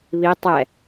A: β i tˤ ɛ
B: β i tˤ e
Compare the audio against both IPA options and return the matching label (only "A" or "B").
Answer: A